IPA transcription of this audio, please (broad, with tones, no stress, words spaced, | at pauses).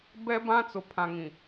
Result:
bɛ˦ bã˦ t͡sʊ˨pʰã˨ŋĩ˨